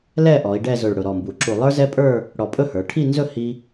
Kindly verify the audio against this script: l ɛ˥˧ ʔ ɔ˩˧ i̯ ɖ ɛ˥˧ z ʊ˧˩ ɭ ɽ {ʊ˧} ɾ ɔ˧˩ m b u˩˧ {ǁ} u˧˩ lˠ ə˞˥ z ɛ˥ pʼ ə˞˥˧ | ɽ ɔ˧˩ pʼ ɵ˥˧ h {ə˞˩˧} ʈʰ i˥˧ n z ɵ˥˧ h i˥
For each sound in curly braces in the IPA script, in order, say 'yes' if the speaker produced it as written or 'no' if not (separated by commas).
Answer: no, yes, yes